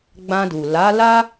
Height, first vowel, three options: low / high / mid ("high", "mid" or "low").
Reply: low